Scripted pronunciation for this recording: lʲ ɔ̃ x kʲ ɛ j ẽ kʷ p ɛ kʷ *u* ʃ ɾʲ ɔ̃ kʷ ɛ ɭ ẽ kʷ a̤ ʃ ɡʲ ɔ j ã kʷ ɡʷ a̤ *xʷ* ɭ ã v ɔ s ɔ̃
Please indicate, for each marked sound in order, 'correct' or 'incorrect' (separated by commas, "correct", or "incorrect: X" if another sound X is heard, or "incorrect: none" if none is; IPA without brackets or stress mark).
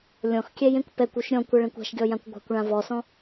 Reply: correct, incorrect: kʷ